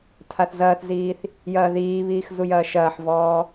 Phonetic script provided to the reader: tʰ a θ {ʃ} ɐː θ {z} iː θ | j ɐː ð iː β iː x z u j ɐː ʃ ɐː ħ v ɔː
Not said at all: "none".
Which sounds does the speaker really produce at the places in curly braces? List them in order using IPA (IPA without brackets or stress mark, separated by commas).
z, z